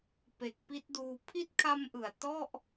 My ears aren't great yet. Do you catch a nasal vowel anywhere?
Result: no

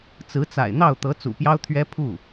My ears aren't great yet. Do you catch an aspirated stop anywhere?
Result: yes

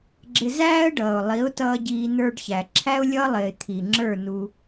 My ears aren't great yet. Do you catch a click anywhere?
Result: yes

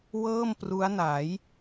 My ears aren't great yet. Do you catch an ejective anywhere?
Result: no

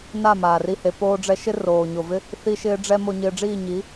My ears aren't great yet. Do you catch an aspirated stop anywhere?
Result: no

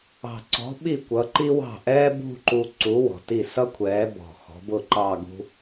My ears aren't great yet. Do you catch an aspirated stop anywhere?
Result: yes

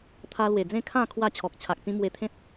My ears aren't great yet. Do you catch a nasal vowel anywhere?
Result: yes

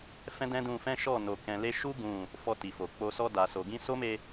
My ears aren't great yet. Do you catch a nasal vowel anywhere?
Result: yes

